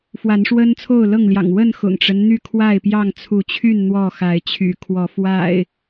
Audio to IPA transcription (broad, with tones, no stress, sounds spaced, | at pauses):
f w a˨˦ n ʂ w ə˦ n t͡sʰ o˥˨ ʊ̯ l ɤ˥˨ ŋ l j ɑ̰˨˩ ŋ w ə˥˨ n x ʊ̰˨˩ ŋ ʈ͡ʂ ə˦ n n̪ y˥˨ kʰ w a˥˨ ɪ̯ p j ɑ˥˨ ŋ t͡sʰ u˨˦ t͡ɕʰ y˥˨ n n̪ w ɔ˥˨ x a˨˦ ɪ̯ t͡ɕʰ y̰˨˩ kʰ w ɔ˨˦ f w a̰˨˩ ɪ̯